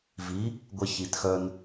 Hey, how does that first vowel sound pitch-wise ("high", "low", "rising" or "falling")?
rising